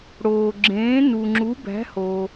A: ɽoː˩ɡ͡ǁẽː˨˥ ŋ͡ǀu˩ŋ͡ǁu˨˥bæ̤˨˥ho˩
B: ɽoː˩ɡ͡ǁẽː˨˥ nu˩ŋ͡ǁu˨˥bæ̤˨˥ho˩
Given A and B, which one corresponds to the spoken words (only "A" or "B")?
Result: B